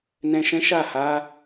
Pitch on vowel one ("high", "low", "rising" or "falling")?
low